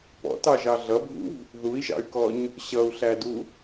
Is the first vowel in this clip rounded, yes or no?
yes